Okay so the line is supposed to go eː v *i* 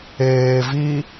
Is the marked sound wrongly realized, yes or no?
no